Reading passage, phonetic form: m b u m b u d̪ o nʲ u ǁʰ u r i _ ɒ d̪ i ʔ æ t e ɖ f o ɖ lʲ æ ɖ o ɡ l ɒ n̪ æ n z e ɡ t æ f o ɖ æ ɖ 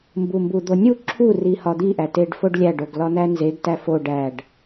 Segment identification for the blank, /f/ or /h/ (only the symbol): h